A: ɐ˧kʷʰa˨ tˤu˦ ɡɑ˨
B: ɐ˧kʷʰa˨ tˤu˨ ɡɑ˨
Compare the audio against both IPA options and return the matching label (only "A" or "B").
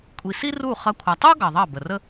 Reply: A